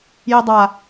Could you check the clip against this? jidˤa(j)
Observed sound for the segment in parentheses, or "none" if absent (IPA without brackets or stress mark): none